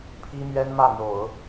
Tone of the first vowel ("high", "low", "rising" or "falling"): high